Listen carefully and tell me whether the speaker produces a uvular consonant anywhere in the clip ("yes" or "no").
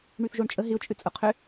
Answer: yes